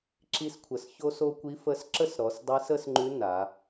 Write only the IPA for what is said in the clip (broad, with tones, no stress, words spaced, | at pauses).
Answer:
ǁi˧skʷʰə˩s ço˧so˧ kʷi˧˥fə˧˥sǁə˥sɾɔ˩˧s dˤi˧˥s ə˥sŋ͡ǃʉ˧˥ na˩˧